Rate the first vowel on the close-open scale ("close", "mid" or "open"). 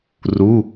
close